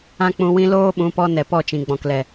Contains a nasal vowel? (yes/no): yes